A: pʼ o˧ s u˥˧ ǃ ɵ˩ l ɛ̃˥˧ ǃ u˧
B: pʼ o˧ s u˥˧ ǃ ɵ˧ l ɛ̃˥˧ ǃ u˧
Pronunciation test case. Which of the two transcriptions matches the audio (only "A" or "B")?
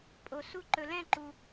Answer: B